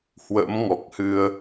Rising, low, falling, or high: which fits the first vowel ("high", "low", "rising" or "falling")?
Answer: rising